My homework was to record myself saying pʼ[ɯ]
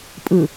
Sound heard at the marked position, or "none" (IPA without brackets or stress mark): ɯ